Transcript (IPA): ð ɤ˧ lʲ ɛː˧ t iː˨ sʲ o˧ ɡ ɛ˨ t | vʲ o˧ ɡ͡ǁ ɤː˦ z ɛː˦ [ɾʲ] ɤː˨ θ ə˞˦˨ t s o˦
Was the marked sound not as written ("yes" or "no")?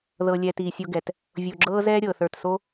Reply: no